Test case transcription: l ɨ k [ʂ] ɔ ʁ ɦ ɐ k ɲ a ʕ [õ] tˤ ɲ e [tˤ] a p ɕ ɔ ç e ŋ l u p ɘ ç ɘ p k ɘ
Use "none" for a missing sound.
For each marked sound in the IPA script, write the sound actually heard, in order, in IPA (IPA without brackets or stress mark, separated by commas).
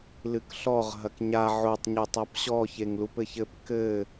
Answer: ɬ, o, tˤ